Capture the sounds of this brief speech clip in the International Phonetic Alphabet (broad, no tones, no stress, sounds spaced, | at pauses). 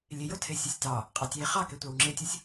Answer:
lʲ e j o tʰ e sʲ o sʲ t ɑ | qʼ ɑ tʲ e χ ɑ k ɛ tʷ ɑ w ŋ͡ǁ e tʲ o sʲ